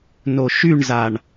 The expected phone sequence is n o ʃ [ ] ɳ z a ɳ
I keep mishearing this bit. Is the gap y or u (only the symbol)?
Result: y